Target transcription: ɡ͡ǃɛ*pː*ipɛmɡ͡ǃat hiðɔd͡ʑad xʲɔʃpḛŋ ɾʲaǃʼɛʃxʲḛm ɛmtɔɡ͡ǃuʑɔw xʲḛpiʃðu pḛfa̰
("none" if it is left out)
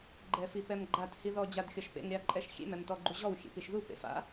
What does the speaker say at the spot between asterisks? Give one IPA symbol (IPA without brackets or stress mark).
f